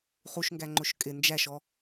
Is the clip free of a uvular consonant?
no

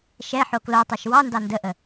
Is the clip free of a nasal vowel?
yes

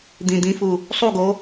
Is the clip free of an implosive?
yes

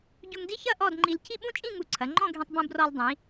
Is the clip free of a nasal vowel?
no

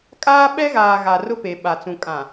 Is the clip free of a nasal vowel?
no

